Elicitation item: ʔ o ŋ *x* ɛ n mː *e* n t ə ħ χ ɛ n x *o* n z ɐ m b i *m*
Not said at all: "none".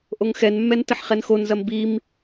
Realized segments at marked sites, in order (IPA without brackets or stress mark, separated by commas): x, ɛ, o, m